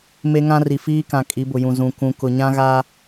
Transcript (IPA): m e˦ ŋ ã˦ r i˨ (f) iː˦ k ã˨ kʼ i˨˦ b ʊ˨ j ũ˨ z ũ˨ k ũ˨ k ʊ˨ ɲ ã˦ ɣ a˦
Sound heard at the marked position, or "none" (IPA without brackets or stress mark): f